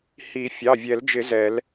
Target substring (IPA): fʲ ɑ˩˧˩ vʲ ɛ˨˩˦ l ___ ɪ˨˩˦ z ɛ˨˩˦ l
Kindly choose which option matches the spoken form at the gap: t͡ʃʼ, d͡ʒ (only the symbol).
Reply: d͡ʒ